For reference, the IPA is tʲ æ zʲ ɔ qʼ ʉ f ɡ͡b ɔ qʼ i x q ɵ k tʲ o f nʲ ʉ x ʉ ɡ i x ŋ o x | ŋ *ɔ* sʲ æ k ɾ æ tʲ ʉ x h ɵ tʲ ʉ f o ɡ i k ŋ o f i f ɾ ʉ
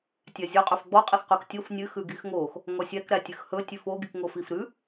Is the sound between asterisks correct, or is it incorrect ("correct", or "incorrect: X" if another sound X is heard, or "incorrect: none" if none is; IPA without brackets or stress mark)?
correct